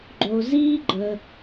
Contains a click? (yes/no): yes